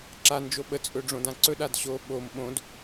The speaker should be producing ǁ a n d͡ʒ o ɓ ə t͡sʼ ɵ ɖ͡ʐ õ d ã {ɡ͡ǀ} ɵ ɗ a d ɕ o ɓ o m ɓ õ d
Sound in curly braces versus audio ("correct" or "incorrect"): incorrect